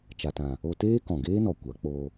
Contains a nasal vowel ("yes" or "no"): yes